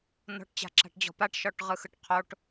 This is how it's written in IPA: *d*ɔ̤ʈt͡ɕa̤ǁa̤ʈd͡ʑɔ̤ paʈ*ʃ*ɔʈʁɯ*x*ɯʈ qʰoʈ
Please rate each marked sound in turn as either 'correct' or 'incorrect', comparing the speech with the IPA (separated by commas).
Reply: incorrect, correct, correct